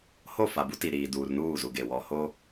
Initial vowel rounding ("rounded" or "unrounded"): rounded